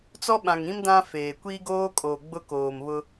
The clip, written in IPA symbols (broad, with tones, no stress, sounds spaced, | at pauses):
t͡s ɔ˦ ɓ ã˨ ŋ ĩ˦ m d ã˦ f eː˨ kʷ iː˦ ɡ oː˦ kʼ o˨ ɡ͡b ʊ˦ k oː˨ m β ʊ˦